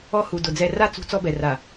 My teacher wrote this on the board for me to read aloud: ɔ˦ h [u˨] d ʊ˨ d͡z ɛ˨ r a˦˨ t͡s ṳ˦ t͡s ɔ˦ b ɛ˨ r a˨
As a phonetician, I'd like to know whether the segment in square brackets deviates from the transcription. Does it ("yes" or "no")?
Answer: no